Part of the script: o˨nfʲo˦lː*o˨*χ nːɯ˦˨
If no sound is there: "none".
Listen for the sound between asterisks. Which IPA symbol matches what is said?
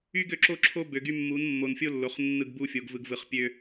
o˨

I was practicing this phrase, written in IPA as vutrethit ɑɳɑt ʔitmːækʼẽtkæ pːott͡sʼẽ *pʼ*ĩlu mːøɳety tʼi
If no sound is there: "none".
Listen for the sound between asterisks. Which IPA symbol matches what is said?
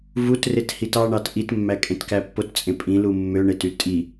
pʼ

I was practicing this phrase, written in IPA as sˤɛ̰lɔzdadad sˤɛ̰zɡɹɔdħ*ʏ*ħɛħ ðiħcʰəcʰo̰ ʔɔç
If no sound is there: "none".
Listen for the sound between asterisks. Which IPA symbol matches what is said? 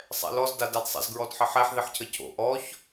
ə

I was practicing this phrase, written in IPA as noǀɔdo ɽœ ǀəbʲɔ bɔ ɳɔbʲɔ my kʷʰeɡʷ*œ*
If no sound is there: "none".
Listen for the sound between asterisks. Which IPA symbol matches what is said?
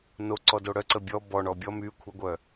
œ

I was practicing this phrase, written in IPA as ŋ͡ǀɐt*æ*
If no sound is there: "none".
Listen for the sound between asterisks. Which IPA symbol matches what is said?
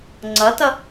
ɐ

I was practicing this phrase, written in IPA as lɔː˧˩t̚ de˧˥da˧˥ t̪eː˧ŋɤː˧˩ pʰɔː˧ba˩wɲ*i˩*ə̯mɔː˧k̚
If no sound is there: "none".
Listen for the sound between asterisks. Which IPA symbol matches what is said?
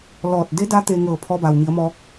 i˩˧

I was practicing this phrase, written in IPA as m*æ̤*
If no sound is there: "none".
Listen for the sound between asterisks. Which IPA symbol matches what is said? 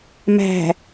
æ̤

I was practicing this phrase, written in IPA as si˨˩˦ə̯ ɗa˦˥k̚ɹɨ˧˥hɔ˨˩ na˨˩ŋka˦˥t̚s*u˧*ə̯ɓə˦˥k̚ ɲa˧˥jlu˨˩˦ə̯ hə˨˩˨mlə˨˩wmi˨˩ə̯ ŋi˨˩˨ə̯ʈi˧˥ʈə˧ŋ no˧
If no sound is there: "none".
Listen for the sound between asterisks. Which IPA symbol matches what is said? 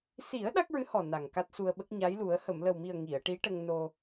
u˧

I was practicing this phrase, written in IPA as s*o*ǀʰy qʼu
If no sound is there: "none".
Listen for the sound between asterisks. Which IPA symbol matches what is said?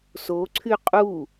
o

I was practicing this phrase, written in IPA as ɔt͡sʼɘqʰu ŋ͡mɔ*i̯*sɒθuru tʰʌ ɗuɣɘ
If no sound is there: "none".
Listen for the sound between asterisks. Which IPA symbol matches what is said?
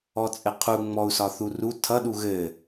u̯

